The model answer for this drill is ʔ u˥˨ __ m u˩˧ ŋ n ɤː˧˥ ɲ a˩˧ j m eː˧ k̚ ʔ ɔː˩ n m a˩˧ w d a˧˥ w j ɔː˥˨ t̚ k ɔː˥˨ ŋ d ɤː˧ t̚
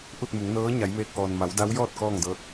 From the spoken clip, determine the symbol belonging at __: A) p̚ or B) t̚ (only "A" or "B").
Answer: B